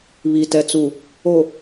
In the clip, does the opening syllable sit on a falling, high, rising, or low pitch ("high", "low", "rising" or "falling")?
low